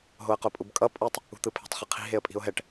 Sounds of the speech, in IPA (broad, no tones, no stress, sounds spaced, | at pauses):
ɦ o ə̯ q o pʼ u b kʼ ʌ pʼ u tˤ | ṳ t̪ ɯ pʰ e̤ tˤ χ ɯ qʰ i̤ ɦ e ə̯ pʼ i̤ ʊ̯ ɦ ɛ ʈ